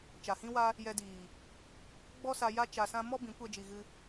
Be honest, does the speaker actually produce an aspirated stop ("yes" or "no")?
no